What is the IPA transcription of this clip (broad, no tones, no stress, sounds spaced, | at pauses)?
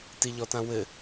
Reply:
t i ʎ ɔ t ã w ɘ